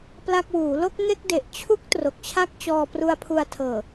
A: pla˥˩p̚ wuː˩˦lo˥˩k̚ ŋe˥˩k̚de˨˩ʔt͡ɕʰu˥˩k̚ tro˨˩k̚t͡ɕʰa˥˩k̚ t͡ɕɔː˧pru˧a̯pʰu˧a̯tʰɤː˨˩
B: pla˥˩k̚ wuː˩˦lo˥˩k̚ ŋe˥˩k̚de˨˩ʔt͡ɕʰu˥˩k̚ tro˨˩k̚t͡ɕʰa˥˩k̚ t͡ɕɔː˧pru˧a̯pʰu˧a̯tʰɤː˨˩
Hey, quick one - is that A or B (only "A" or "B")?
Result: B